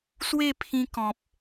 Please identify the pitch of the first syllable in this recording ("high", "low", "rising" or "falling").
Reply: falling